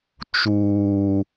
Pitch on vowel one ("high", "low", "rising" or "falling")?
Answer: high